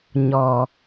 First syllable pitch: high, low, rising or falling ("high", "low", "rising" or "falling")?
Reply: low